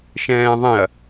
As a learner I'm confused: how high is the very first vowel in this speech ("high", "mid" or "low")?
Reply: mid